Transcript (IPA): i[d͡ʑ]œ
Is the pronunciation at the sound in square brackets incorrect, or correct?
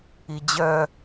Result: correct